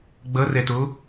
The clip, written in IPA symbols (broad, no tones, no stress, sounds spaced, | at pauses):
ɡ͡b ʌ r ɛ t o